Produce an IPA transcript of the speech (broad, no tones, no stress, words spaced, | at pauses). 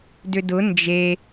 dʏdʊ nd͡ʒe